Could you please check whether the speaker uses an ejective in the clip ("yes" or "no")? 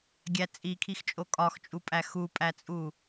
yes